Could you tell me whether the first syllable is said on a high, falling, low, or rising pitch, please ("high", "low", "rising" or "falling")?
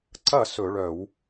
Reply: falling